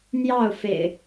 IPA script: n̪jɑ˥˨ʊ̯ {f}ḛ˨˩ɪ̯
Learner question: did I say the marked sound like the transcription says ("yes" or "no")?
yes